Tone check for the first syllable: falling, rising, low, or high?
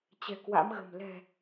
low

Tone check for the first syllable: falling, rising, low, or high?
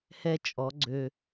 high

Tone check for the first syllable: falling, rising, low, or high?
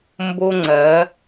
high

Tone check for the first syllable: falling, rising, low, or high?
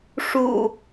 low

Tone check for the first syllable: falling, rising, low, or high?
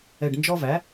low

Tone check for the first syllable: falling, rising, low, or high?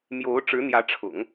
rising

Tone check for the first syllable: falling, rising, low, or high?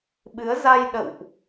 rising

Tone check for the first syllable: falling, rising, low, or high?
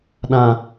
low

